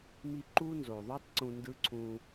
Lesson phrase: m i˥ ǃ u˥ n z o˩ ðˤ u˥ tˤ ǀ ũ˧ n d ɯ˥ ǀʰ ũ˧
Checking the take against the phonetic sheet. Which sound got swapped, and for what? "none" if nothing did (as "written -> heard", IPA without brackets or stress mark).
none